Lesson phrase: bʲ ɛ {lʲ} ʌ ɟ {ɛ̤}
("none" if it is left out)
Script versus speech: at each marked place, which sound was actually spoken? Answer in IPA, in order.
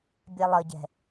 lˠ, ɛ̤

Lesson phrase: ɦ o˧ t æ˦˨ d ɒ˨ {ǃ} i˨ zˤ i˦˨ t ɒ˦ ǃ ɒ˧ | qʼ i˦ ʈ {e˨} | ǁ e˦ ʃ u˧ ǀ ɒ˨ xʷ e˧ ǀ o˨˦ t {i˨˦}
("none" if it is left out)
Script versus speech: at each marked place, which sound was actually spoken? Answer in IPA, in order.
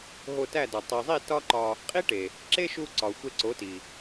tˤ, e˨, i˨

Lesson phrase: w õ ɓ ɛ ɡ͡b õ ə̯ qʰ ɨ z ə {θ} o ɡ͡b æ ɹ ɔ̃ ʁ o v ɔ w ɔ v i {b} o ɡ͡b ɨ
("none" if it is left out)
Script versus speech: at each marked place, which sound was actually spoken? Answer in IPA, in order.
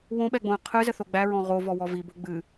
θ, b

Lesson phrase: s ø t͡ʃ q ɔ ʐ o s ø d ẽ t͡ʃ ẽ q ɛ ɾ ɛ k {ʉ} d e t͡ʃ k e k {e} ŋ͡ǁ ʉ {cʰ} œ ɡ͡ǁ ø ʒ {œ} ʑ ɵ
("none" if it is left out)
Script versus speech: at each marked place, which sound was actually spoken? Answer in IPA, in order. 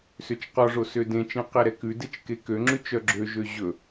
ʉ, ø, t͡ʃ, ø

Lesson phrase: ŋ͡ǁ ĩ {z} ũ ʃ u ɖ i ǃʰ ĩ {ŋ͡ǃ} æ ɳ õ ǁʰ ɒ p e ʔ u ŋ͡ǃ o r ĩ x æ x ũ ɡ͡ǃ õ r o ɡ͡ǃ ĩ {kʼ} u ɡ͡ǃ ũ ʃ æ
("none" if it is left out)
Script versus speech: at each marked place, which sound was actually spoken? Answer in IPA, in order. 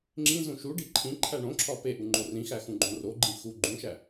z, ǃʰ, x

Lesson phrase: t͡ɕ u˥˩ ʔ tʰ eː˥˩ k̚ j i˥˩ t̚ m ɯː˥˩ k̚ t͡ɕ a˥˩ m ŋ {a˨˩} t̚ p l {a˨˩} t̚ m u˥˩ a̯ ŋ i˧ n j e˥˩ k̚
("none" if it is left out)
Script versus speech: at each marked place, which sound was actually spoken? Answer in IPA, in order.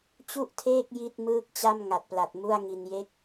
a˨˩, a˨˩

